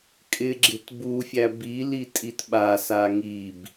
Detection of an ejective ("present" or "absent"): present